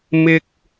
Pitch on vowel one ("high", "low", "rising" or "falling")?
high